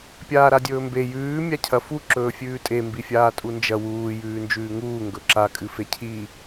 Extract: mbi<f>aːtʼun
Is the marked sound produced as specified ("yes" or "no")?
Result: no